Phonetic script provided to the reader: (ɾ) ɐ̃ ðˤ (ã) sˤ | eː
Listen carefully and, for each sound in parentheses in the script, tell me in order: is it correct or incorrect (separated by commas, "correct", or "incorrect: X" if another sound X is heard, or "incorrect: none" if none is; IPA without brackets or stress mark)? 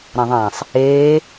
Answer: correct, correct